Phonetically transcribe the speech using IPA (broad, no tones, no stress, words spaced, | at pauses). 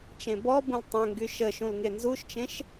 t͡ʃẽbɔbũl tˤə̃ ŋɡyʃəʃũl ŋenzuʃt͡ʃẽʃ